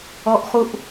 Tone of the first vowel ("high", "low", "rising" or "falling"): high